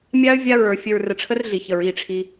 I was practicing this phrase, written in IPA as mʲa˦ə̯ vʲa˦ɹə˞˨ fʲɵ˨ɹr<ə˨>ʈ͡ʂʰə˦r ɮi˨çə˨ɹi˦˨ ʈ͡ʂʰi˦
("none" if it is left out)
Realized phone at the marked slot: ə˨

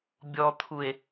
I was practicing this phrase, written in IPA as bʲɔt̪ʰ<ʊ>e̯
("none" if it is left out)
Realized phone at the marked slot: u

